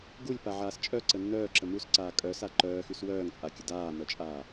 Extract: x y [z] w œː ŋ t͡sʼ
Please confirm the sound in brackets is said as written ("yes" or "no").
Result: no